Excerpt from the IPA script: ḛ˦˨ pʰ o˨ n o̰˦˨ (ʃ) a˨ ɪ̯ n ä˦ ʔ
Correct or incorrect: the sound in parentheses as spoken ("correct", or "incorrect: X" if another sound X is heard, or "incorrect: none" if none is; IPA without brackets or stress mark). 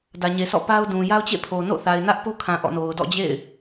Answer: incorrect: θ